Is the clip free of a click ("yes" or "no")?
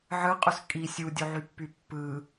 yes